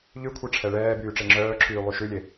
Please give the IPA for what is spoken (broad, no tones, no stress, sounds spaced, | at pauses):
ʎ ʉ kʷʰ ɛ ʈ͡ʂʰ ɛ ɭ ɛː b yː ʈ͡ʂ e ŋ͡ǁ œː ǁʰ yː lˠ y ʃ ʉ lʲ e